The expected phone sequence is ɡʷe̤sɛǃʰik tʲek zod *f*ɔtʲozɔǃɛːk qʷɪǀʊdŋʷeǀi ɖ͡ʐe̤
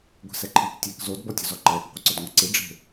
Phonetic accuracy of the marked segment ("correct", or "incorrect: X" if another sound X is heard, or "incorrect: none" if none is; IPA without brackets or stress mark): incorrect: b